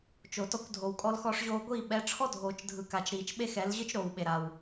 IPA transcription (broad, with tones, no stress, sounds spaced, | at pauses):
t͡ʃ o˨ t ɔ˧ kʷ dʱ o˨ w kʼ ɔ˧ l x ɔ˧ ʂ ʑ oː˧ ɡʷ iː˦˨ ɓ ɛ˨˦ ʈ͡ʂʰ ɔ˦ dʱ oː˨ t͡ʃ dʱ ɯ˨ k a˨ t͡ʃ ɾ iː˨ t͡ʃ ɓ e˦ x ɛ˨˦ l ʑ ɯ˦ t͡ʃ ɾ oː˨ w ɓ e˨ ɾ a˨ w